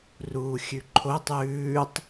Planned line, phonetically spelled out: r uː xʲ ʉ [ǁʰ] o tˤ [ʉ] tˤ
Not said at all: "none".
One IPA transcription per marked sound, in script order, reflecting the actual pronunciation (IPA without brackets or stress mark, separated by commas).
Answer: ǃʰ, ʉː